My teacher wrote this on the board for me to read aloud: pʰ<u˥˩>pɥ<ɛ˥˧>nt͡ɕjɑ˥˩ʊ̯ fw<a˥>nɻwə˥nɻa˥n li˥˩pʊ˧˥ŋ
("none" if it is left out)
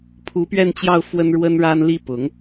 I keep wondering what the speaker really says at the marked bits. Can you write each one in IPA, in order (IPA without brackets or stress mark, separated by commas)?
u˧˥, ɛ˥˧, ə˥